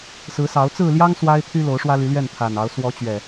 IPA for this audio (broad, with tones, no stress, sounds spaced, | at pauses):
s ɹ̩˨˦ s ɑ˨˦ ʊ̯ t͡s ɹ̩˥˨ l j ɑ˦ ŋ s w a˦ ɪ̯ t̪ʰ y˦ l o˨˦ ʊ̯ ʂ w ä˦ l y˨˦ l ɥ ɛ˥˨ n t̪ʰ a˨˩ n ɑ˨˦ ʊ̯ s w ɔ˨˦ t͡ɕ ɥ ɛ˨˩